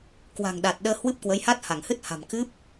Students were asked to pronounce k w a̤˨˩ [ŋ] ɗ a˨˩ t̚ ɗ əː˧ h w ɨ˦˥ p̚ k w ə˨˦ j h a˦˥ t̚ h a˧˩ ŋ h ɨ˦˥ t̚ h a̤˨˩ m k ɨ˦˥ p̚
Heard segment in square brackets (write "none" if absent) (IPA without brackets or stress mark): ŋ